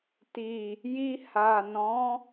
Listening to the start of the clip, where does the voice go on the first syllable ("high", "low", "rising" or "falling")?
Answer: low